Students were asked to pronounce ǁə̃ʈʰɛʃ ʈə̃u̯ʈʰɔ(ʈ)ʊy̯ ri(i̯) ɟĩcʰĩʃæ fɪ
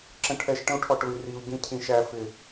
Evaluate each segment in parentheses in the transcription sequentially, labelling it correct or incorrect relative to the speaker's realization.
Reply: correct, incorrect: u̯

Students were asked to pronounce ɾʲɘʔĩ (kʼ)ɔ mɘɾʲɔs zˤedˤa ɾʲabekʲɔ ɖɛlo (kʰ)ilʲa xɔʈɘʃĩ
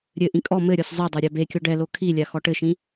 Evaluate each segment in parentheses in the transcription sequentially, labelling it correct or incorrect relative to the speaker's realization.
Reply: correct, correct

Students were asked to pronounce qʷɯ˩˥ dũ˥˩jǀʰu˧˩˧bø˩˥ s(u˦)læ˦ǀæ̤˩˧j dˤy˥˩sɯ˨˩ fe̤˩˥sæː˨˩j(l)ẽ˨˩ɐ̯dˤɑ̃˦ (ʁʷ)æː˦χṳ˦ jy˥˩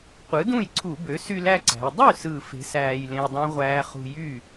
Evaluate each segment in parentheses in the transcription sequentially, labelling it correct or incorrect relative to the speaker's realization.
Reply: incorrect: y˦, correct, correct

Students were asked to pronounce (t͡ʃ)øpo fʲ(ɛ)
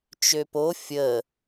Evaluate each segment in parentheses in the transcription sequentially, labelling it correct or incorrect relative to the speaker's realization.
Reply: correct, incorrect: ə

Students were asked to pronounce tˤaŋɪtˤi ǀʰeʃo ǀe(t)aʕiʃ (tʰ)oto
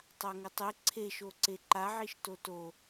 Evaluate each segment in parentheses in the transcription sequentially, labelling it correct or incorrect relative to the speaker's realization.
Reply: incorrect: ǃ, incorrect: t

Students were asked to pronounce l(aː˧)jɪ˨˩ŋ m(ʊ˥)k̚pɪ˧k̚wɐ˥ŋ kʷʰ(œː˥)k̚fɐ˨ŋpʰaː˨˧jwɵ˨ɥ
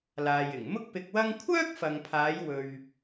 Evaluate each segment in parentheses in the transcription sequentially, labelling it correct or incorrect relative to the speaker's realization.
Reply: incorrect: aː˨, correct, correct

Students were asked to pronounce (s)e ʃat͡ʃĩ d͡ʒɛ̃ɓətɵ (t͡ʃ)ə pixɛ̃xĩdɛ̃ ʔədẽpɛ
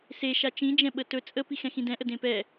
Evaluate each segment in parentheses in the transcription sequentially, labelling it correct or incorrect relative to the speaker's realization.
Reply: correct, incorrect: t͡sʼ

